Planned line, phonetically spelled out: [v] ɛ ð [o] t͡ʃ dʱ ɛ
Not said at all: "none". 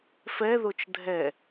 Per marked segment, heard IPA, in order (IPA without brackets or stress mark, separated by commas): f, o